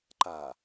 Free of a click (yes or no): no